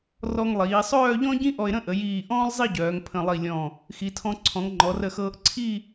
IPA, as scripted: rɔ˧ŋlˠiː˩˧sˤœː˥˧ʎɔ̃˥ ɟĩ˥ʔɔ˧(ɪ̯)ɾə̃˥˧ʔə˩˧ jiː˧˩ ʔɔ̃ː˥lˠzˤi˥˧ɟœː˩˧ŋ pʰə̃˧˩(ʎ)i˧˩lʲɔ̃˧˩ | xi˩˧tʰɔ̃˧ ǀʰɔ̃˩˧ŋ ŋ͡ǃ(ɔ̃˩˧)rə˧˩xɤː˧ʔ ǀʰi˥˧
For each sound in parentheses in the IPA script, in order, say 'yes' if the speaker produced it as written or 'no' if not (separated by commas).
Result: yes, no, no